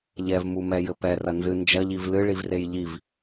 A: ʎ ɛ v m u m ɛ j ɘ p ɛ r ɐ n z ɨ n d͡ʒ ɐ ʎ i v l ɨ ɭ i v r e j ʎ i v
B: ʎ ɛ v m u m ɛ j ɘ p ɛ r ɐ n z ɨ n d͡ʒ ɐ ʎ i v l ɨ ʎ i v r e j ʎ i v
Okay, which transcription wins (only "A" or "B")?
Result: A